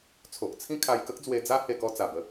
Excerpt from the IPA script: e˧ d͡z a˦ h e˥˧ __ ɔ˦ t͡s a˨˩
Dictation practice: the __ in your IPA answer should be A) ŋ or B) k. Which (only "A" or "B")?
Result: B